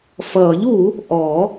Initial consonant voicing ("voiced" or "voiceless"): voiceless